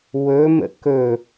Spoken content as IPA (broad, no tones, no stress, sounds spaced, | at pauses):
w ɵ m ə̰ k ɵ